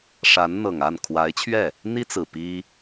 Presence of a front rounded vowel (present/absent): absent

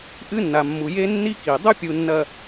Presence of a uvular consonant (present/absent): absent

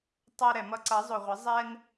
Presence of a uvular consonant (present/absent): present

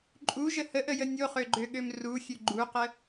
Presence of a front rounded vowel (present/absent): present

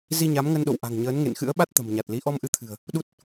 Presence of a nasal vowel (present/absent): absent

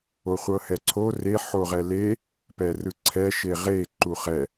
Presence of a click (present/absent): present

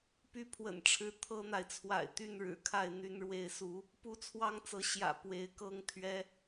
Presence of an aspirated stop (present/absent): present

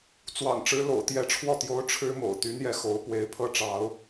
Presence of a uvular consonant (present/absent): absent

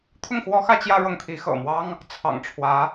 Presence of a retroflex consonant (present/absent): present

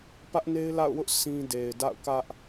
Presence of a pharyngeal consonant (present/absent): absent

